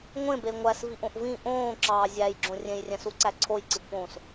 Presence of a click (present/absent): present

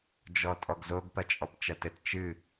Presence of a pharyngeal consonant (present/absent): absent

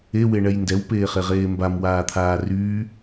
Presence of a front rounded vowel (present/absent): present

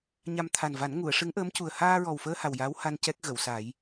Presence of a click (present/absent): absent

